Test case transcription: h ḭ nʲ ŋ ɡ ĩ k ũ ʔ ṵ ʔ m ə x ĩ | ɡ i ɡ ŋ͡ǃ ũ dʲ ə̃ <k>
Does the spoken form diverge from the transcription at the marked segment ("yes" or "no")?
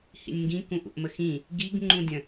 yes